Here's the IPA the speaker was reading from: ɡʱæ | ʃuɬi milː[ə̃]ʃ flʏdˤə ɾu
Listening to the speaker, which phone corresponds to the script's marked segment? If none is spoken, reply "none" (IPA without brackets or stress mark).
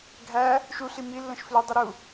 ə̃